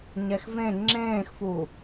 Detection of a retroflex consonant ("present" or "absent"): absent